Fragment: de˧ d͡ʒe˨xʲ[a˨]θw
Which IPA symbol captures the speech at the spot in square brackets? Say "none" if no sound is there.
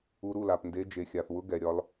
a˨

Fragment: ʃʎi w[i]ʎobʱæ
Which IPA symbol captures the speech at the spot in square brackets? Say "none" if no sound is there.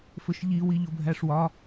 i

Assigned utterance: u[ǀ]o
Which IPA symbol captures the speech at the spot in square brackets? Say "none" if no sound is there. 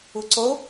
ǀ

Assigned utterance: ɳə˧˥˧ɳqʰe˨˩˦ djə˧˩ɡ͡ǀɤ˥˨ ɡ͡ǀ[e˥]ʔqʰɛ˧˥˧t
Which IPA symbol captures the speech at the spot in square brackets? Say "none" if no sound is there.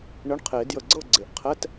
e˩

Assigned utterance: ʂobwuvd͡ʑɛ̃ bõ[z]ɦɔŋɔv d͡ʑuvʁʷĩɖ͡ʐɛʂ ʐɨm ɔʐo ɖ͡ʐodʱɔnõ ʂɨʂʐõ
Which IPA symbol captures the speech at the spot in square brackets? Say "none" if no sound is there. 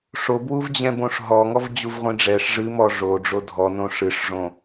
ʂ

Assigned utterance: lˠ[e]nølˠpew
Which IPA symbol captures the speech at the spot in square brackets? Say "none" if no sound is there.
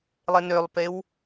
e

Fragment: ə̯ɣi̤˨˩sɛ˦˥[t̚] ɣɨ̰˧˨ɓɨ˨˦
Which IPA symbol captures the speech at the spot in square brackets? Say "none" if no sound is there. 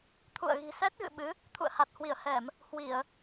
t̚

